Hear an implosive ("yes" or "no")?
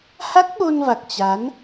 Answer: yes